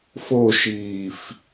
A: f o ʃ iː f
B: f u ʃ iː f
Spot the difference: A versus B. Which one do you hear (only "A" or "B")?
A